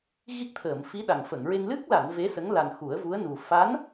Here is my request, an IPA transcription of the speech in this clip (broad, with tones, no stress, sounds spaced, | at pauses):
ɣ i˦˥ k̚ t̪ʰ əː˨˩˨ m f i˧˥ ɗ a˨˩ ŋ f ə˨˩˨ ŋ ɹ e˧ ŋ l ɨ˦˥ k̚ l a˨˩˨ n v e˧˥ s ə˧˥ ŋ l a˨˩ n x u˨˩˦ ə̯ v u˧˥ ə̯ n u˨˩ f a˧˥ n